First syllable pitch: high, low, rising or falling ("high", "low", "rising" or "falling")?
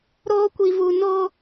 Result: high